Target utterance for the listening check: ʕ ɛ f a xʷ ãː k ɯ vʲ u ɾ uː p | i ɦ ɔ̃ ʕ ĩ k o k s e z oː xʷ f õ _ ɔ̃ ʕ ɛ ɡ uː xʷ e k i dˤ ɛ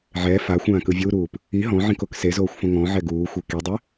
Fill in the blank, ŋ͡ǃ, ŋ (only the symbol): ŋ